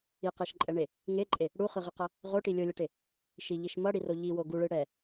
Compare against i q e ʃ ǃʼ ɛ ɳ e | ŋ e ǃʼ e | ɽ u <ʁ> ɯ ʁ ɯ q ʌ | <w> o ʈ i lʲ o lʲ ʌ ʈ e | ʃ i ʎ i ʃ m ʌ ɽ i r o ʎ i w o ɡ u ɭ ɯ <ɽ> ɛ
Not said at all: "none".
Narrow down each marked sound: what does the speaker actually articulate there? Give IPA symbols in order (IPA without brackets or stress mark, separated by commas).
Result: χ, ʁ, ɽ